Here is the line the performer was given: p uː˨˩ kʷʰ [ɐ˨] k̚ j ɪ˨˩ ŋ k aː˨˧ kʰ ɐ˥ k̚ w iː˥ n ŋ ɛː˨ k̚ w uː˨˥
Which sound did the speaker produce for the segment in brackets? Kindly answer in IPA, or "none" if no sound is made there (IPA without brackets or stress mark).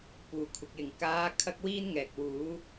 ɐ˨